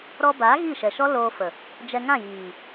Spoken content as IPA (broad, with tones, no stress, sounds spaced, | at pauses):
ɾ ɔ˧ b aː˨˦ ɣ i˦˨ ʃ ɛ˨ ʃ ɔ˦ l oː˧ f ə˨ | d͡ʒ ɛ˧ ŋ ã˦˨ j iː˨